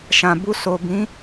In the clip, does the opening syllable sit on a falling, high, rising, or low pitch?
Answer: low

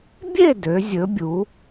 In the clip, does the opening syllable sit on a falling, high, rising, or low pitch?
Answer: falling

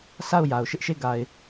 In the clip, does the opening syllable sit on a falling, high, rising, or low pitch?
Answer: falling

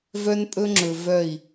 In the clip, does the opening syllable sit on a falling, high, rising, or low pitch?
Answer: high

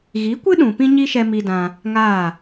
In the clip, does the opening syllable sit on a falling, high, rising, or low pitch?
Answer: rising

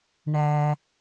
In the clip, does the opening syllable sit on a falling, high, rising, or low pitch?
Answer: low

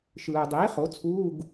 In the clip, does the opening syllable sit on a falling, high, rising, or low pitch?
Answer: low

